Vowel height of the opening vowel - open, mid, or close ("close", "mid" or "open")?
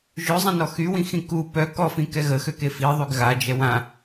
mid